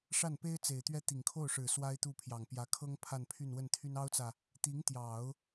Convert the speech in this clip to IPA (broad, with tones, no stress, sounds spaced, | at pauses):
ʂ a˥˩ n p e˥ ɪ̯ t͡s e˨˩ ɪ̯ t̪ ɥ ɛ˥˩ t̪ i˨˩ ŋ kʰ o˥˩ ʊ̯ ʂ ɻ̩˨˩ s w a˥ ɪ̯ t̪ u˥˩ pʰ j ɑ˨˩ ŋ p j ä˧˥ kʰ ɤ˥ ŋ pʰ a˥˧ n pʰ y˥˧ n w ə˥˩ n t̪ʰ y˥ n ɑ˥ ʊ̯ t͡s ä˨ | t̪ i˧˥ ŋ t̪ j ɑ˨˩˦ ʊ̯